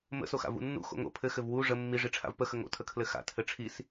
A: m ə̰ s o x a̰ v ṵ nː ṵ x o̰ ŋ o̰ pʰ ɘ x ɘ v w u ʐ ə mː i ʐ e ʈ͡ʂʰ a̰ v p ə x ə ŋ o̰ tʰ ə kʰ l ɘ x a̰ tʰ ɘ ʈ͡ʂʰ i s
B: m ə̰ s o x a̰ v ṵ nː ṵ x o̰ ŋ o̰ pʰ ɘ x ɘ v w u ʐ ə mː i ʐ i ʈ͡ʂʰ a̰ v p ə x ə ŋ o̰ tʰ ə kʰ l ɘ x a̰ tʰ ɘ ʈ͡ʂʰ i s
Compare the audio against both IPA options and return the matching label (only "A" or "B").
B